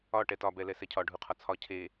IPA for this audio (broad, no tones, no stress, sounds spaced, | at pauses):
ɒ ʈ ɛ t ɒ b ɛ l ɛ s ɛ cʰ ɒ ɖʱ u qʰ ɒ t͡sʰ ɒ cʰ e